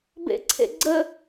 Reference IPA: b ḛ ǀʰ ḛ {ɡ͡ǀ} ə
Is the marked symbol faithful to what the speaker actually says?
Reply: yes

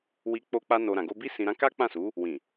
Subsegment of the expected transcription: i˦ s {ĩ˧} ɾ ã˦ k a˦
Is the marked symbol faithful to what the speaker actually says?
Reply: yes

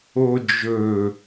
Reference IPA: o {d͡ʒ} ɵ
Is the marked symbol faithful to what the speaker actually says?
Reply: yes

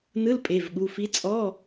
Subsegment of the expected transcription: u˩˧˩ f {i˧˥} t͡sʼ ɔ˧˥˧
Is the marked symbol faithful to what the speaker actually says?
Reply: yes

